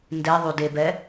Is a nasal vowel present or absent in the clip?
absent